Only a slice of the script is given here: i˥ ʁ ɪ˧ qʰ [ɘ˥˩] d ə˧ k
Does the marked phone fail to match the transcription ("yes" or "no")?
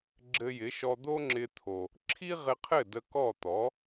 no